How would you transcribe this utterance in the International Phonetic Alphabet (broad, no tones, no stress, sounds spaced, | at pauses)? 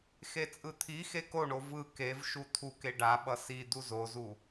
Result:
x e t͡sʼ ɯ t̪ʰ i x e k o ɳ o v ɯ k e v ʃ u t̪ʰ u k e ɖ a ɓ ʌ s i d̪ u z o z u